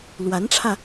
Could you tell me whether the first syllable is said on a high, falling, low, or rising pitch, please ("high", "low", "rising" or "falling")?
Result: rising